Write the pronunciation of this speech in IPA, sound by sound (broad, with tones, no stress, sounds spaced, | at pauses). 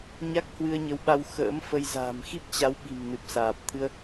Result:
ɲ a˦˥ k̚ h w ɨ˧ ə̯ ɲ ə˨˦ w ɓ a˧ w x ə̰ː˧˥ m f ə˧ j z a̤ː˨˩ m x i˦˥ p̚ t͡ɕ a˨˦ w ɓ i̤˨˩ m n ɨ˨˩ p̚ s aː˨˩ p̚ t̪ʰ ɨ˧ ə̯